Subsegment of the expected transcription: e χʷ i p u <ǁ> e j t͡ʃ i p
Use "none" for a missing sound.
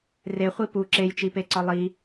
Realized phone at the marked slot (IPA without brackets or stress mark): ǁ